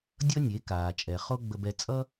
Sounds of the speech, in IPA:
dʲʌ˦nʲe˨˦kaː˨ t͡ʃʼɛ˨ χo˦ ɡ͡bə˧bɛ˧ t͡sʼʌ˦

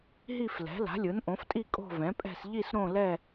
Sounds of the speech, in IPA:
ɦi˥˧flɛ̤˩˥ la̤˩˥lʲɯ˩˥nʔõ˩˥ftʼi˥˧ kʼo̤˥˧vɛ̃˩˥pʼɛ̤˥˧s ʎi˥˧sɾõ˥˧lɛ˥˧

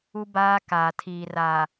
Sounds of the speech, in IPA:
u˦baː˦ kaː˨tʰiː˨raː˨

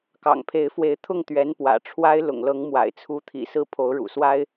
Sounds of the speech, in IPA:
kɑ̰˨˩ŋpʰe˧˥ɪ̯fwe˧˥ɪ̯ t̪ʰʊ˥˩ŋt̪ɥɛ˧˥npwä̰˨˩ ʈ͡ʂʰwa˥ɪ̯ lʊ̰˨˩ŋlɤ˧˥ŋ mwa̰˨˩ɪ̯t͡sʰu˧˥t̪ʰḭ˨˩sɹ̩˥˩ pʰo˧˥ʊ̯ɻṵ˨˩swa˥ɪ̯

